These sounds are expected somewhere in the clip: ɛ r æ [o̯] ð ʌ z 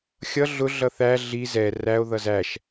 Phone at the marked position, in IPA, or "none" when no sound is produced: o̯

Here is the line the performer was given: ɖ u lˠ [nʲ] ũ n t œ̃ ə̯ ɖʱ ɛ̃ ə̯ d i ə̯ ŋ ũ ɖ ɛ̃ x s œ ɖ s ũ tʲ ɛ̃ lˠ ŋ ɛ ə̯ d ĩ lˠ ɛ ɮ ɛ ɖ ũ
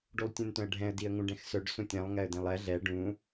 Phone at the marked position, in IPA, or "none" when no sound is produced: tʲ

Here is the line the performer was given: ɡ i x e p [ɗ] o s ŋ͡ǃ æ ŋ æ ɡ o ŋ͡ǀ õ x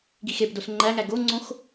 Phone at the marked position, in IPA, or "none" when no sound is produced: d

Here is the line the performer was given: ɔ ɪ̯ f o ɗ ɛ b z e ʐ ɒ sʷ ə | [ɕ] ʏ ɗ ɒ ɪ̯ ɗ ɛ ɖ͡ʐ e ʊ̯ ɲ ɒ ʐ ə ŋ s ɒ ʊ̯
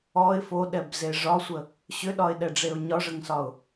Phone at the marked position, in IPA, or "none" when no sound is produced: ɕ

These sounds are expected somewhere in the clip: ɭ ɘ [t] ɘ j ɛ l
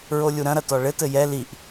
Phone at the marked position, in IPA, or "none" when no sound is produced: t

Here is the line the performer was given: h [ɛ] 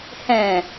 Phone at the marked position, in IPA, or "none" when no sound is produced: ɛ̃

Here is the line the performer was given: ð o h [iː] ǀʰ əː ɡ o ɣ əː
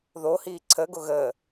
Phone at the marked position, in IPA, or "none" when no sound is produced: iː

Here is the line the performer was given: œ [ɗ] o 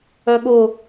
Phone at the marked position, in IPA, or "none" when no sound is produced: ɠ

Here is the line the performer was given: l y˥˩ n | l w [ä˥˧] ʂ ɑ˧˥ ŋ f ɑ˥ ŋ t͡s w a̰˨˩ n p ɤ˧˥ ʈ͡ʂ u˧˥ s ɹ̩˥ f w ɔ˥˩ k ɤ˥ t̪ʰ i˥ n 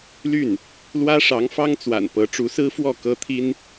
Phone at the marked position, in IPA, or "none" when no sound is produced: ä˥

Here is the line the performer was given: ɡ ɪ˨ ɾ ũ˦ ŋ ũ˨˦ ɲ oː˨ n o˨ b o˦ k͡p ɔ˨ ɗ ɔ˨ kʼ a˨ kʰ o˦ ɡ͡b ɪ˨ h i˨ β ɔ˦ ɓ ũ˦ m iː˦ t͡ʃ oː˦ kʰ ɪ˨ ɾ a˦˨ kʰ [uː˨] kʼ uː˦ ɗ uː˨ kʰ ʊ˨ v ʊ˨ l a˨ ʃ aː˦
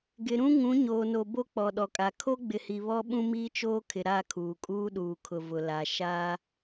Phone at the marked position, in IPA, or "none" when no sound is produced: uː˨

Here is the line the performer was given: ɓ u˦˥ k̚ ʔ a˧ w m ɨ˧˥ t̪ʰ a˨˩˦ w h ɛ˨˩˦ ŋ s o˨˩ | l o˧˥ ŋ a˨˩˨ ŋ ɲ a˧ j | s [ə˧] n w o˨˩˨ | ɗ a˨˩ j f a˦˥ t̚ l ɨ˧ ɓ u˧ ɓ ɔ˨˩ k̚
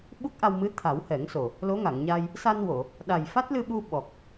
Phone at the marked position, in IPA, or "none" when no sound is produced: a˧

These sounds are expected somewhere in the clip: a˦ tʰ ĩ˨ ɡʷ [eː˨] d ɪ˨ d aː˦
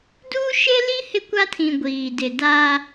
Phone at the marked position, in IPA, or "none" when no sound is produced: iː˨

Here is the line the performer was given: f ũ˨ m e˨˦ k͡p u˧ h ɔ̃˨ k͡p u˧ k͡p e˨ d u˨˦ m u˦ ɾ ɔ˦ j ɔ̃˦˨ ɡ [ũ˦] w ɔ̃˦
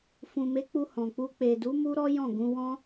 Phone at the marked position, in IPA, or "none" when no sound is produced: ũ˧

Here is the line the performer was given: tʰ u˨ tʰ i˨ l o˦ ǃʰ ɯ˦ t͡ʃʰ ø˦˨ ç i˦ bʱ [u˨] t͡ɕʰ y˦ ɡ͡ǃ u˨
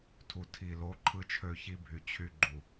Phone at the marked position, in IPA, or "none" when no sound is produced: y˨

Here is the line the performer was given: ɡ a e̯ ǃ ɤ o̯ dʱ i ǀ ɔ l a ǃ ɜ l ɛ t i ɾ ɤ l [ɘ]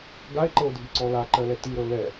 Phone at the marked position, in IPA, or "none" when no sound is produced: ɛ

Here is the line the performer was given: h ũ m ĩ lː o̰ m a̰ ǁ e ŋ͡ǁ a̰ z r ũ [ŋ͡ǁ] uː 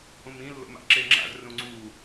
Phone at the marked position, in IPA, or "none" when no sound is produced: ŋ͡ǀ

